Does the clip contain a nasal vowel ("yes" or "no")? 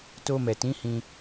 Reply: yes